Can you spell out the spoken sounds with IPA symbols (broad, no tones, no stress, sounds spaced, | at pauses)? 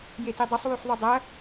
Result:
j e t e dˤ ɨ sˤ w ʉ ħ ðˤ ɵ dˤ ɐ